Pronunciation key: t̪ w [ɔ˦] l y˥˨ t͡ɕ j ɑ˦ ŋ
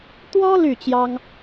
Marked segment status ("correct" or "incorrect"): correct